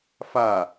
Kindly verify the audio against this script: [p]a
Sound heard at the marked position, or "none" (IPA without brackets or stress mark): f